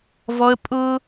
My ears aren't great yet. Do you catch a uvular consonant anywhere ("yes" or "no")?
no